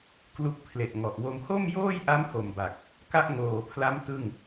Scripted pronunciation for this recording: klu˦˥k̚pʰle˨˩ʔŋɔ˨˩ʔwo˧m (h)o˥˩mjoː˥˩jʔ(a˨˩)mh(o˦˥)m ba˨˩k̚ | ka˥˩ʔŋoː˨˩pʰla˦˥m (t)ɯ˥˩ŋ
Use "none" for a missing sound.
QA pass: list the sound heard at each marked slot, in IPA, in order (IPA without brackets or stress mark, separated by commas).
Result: h, a˦˥, o˨˩, t